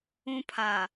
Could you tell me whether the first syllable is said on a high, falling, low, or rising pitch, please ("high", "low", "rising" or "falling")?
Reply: high